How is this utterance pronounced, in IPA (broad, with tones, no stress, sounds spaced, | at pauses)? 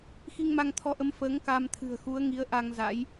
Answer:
x i˧ ŋ m a˧ ŋ t̪ʰ ɔ˧ ʔ ə˨˦ m f əː˨˦ ŋ k a˧ m t̪ʰ ɨ̤˨˩ ə̯ x u˨˦ ə̯ ŋ i˨˦ ə̯ ʔ a˧ ŋ z a̰˧˥ j